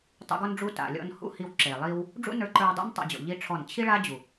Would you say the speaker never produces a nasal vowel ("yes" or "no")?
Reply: yes